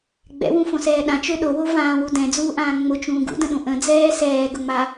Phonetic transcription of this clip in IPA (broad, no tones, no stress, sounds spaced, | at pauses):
ɡ͡b ɛ̰ w ũ f õ s ɛː ɗ ã t͡ʃ ø ɗ o w o v ãː w u d ɛ̃ d͡z uː ʔ ãː ŋ͡m ʊ t͡ʃ ũː ɡ ṵ d ə̃ ɗ ũ ʔ ə̃ d͡z ɛː s ɛː ɡ ʊ ŋ͡m a